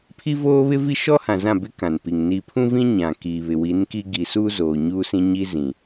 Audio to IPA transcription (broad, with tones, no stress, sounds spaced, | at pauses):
pʰ i˦ v oː˦ β ɪ˦ v i˦ ʃ ɔ˦ h ã˨ z ã˦˨ b ɪ˦ k ã˨ n p i˨ ŋ n i˨ pʰ ũ˦ v ĩ˦ ɲ ã˨ k iː˨ β ɪ˨ w i˨˦ n k i˦ ɡ i˨ s uː˦ z oː˨ ɲ uː˦ s ĩ˦ ɲ i˦ z ĩ˨